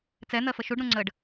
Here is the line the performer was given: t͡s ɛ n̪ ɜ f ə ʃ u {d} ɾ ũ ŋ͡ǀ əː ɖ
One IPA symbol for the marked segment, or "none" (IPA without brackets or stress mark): ɖ